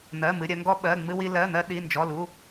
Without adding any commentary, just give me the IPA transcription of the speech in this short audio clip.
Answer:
n̪ ɜ˩˧˩ m ɨ˩˧˩ ɾʲ ɜ˧ ŋ ɡ ɔ˧ ɓ ɜ˩˧˩ ŋ͡m ɨ˧ w i˧ l ɜ˩˧˩ n̪ ɜ˧ ɗ i˩˧˩ n d͡ʒ ɔ˩˧˩ l u˩˧˩

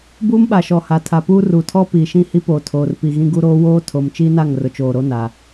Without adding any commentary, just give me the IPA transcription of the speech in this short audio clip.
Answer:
b uː˦ m ɓ a˨ ʃ ɔ˨ h a˨ tʰ a˨ p uː˦ r u˨˦ tʰ ɔ˦ p iː˨ ʃ ĩ˦˨ h i˦ p oː˨ tʰ oː˨ r p i˨ ɣ ĩ˦ ɡ u˦ ɾ oː˦ w oː˦ tʰ o˨ m t͡ʃ iː˦ n a˦˨ ŋ r ʊ˨ t͡ʃ oː˨ ɾ o˦ n a˨

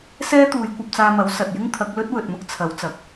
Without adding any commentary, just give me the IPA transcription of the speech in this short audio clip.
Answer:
s ɛː˥ t̪ uː˨˧ j kʷ ɐ˧ p̚ t͡s aː˧ m ɐ˨˥ w s ɐ˨ t̚ j ɪ˥ ŋ t̪ʰ ɐ˨˥ k̚ l ɵ˥ t̚ w ɵ˨ t̚ m ʊ˥ k̚ t͡sʰ ɐ˨˥ w t͡s ɐ˨ k̚

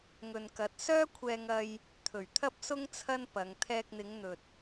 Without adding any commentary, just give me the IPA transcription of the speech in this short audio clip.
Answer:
ŋ ɵ˨ n k ɐ˨˥ t̚ s œː˥ kʷʰ ɛː˧ ŋ ɐ˧ j | t̪ʰ ɵ˨˩ ɥ t̪ʰ ɐ˥ p̚ s ʊ˥ ŋ t͡sʰ ɐ˥ n p ɐ˨˧ ŋ t̪ʰ ɛː˧ k̚ n̪ ɪ˨˧ ŋ n̪ ɵ˨ t̚

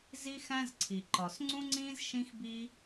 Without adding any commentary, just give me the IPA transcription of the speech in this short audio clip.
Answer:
z i˥ x æ̃˥ z ǀʰ i˩ ǃ ɒ˩ s ŋ͡ǀ ũ˥ ŋ͡ǀ ĩː˥ z ʃ ĩ˥ x b i˥

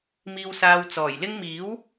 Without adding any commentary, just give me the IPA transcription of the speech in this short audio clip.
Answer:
m iː˨ w s aː˨ w t͡s ɔː˨˩ j l ɪ˥ ŋ m iː˨˥ w

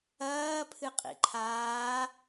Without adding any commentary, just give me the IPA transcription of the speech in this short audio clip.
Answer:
ɐː pʰ ɨ qʼ ḭ ǃʰ aː

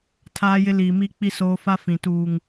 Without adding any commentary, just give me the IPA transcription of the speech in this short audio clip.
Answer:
tʰ aː˦ j ɪ˦ l iː˨ m iː˦ k͡p i˦ s oː˦ f a˦ f ĩ˨ t uː˨ ŋ

